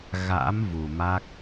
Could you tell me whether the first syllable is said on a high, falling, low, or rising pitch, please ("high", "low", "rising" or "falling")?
rising